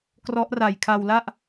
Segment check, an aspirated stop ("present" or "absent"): present